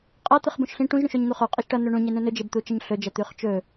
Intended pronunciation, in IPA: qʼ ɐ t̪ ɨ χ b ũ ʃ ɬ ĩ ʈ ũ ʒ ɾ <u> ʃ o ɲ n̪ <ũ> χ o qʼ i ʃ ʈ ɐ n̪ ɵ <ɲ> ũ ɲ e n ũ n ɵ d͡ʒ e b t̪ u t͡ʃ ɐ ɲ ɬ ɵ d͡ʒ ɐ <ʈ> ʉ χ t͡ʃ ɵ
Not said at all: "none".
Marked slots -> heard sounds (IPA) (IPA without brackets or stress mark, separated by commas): ũ, u, ɳ, t̪